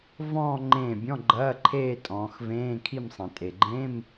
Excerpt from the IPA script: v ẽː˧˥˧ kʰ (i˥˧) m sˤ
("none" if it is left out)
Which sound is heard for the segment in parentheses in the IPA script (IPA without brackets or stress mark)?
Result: i˥˧